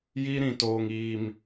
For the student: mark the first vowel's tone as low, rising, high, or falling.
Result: high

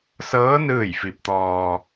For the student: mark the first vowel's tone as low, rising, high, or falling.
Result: rising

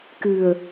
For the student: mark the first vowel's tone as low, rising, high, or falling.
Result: low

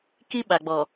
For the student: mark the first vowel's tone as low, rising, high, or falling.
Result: high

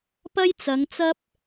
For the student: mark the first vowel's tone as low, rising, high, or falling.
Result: high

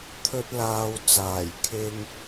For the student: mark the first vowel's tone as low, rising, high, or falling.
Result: high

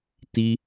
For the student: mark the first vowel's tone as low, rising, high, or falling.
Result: high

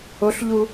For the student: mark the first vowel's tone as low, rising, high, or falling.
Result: rising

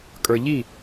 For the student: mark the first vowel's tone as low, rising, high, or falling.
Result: low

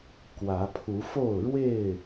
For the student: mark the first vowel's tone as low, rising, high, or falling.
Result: rising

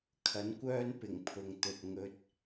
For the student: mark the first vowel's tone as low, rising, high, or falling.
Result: rising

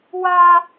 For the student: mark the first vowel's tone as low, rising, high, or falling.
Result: high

